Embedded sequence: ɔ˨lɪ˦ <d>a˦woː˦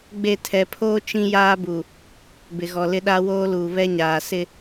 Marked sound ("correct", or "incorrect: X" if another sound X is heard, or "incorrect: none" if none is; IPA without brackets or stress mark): incorrect: ɗ